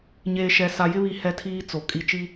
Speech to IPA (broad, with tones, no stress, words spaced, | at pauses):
ɲeː˨ʃɛ˨ sa˨jɪ˦βi˨ hɛ˦tʰiː˦ t͡so˨ kʼi˨t͡ʃi˦